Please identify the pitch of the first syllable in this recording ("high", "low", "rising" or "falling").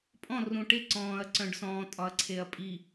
falling